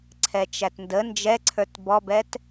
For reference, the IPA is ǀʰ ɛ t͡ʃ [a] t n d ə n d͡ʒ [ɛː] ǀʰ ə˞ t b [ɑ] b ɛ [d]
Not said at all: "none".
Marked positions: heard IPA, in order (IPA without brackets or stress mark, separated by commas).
æ, ɛ, ɔ, t